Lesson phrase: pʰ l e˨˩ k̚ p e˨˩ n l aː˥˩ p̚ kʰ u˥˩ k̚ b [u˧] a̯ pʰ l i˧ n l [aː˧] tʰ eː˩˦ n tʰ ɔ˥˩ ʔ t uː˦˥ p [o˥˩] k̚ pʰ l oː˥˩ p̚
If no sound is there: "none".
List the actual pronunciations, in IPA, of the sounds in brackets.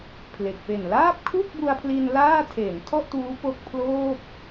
u˧, aː˥˩, o˦˥

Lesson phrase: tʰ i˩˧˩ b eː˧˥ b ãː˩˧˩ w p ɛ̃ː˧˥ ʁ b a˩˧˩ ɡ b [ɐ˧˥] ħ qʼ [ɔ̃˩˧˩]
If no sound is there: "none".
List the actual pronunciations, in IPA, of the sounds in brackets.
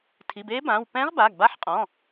a˧˥, ɔ̃˩˧˩

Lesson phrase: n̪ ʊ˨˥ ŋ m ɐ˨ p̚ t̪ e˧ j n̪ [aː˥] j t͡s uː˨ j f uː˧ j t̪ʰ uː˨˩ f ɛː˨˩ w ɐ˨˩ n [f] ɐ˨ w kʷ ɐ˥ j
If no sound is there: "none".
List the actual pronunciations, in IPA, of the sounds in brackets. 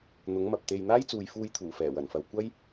aː˥, f

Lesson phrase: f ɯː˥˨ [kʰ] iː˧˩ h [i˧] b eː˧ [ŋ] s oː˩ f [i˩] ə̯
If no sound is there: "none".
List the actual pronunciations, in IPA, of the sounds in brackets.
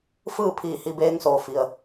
pʰ, i˧, ŋ, i˩

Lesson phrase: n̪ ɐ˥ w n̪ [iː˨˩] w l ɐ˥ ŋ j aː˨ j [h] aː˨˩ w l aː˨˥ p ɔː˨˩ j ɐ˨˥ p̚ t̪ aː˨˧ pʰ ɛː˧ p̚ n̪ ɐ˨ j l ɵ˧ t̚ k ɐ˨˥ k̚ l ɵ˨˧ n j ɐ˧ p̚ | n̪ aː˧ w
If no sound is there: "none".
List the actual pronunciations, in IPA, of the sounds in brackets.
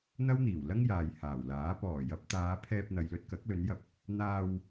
iː˨˩, h

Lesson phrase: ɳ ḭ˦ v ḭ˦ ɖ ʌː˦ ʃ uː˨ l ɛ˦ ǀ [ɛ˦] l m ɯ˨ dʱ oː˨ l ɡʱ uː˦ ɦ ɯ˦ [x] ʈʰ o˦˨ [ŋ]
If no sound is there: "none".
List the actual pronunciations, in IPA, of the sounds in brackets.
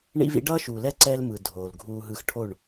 ɛ˦, x, ɳ

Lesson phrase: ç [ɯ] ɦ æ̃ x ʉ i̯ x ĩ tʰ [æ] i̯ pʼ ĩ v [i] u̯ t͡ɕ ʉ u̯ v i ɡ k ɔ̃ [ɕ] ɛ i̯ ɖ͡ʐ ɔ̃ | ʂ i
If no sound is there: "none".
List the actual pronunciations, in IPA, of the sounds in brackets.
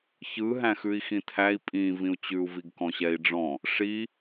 ɯ, æ, ĩ, ɕ

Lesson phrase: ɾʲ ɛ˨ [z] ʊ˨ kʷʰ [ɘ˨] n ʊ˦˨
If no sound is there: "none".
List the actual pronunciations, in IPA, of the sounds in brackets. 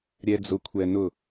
d͡z, ɛ˨

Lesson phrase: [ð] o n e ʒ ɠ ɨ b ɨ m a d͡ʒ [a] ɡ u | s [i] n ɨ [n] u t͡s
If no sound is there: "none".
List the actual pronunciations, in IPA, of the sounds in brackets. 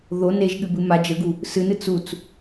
ð, ə, ɨ, t͡s

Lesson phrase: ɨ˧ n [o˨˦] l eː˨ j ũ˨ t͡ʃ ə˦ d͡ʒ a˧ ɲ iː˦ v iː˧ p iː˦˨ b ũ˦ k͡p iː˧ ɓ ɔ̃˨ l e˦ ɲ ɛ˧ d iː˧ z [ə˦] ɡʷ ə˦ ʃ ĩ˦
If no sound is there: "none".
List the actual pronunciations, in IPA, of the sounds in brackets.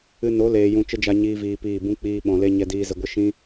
o˨˦, ə˧

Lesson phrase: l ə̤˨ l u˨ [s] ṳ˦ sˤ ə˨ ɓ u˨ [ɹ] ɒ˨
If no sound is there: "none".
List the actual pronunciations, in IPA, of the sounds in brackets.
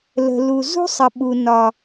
z, n

